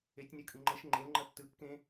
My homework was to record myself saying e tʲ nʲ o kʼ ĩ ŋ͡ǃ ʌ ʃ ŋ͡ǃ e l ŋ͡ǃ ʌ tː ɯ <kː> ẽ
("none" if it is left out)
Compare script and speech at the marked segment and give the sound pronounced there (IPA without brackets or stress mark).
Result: kː